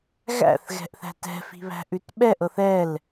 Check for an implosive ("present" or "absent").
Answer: present